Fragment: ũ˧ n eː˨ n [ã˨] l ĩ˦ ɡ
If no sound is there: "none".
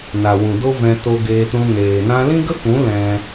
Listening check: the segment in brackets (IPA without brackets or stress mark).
ã˧